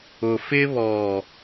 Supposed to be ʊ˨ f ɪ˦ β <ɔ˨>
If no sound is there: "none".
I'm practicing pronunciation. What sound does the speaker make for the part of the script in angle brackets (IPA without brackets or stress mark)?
ɔ˨